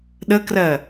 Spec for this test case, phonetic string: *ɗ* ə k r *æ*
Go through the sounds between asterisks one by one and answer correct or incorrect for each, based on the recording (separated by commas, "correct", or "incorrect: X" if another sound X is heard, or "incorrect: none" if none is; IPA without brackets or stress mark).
correct, incorrect: ɜ